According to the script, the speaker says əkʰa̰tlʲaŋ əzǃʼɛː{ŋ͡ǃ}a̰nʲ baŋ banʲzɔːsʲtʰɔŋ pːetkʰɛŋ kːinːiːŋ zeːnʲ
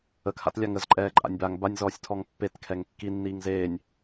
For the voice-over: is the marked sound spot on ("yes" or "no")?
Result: no